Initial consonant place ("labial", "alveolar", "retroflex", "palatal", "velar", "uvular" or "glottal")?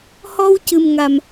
glottal